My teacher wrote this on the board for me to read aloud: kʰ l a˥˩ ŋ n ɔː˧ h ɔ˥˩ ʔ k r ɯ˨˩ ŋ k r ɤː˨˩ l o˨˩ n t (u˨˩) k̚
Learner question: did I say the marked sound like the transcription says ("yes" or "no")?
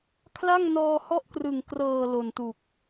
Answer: yes